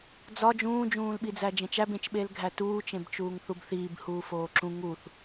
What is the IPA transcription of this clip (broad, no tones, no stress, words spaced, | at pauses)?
d͡zɒ d͡ʒũːd͡ʒũːlɓid͡zæ d͡ʒẽt͡ʃæb ẽt͡ʃɓelɡʱæ tuːt͡ʃẽbt͡ʃuːŋ θubθiːbhuː foːǁũ ŋuθ